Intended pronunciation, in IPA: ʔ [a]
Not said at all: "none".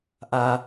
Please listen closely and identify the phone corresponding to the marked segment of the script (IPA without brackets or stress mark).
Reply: a